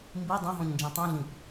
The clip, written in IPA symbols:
m b i dˤ ɛ̃ ɦ ɔ̃ ɲ n d͡ʒ ĩ tˤ ũ ɮ ĩ p

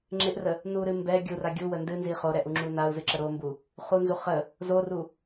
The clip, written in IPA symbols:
ŋ͡ǁ ɪ ʔ r ə | n u ɾ ɨ m b ɛ ɡʲ u r a ɡʲ u w ə n d ɨ n z i χ o ɾ ɛ ʔ u ŋ͡ǁ u n a u̯ z ɨ ǁ ə ɾ o m b u | χ u n z u χ ə | z o r u

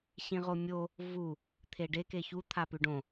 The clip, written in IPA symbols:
ɕ ĩ ʁ o mʲ o | v u | t̪ʰ e ɖ e k e ç u t̪ʰ a p ʉ ɖ õ

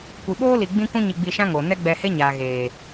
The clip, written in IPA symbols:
kʷ i˨ ɓ oː˦ l i˨ ɡ͡b ĩ˦ k ũ˦ ɲ i˧ ɡ͡b i˧ ʃ ã˦ ŋ o˨ n ɛ˦ ɡ͡b ɛ˧ h e˦ ɲ aː˨ ɣ eː˨

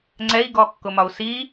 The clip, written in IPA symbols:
ŋ͡ǀ ɛ i̯ ɡ ɔ kː ʊ m ɒ u̯ s i

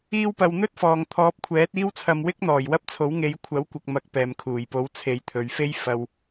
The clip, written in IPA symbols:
iː˧ w p ɐ˨ w n̪ ɵ˥ t̚ f ɔː˨ ŋ t̪ʰ ɔː˨˥ p̚ kʷʰ ɛː˨˥ t̚ iː˥ w t͡sʰ ɐ˧ m w ɪ˥ k̚ n̪ ɔː˨˩ j w ɐ˥ p̚ t͡sʰ o˨˥ w ŋ e˨˧ j kʷʰ ɐ˨˥ w kʷ ɐ˨ k̚ m ɐ˨˥ k̚ p ɛː˨ m kʰ uː˨˩ j p o˨˥ w t͡sʰ e˨˧ j t̪ʰ ɵ˨ ɥ f e˥ j f ɐ˨ w

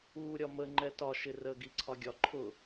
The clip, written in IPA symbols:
uː ɾʲ ɒ m ə ŋ͡ǃ ɛ t ɒ ʃ ɪ r ə ɡ i ǀʰ ɒ ɡʲ ɒ ǃʰ ʊ

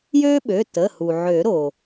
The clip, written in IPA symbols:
j øː˥ ɓ ø˩˧˩ t ə˩˧˩ h u˩ ʕ ø˨˩˦ ɾ oː˩

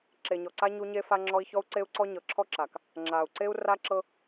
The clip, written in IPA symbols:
ǁ e˨ ɲ ɔ˨ ǀ a˦ ɲ u˦ ɲ e˦ f a˦ ŋ͡ǁ ɔ˦ i̯ ç ɔ˦ u̯ ǀ e˦ u̯ ǀ ɔ˦ ɲ ɤ˨ ǁʰ ɔ˦ ǁ a˨ k | ŋ͡ǁ a˨ u̯ ǀ e˦ u̯ r a˦ ǁ ɤ˦

